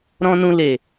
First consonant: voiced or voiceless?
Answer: voiced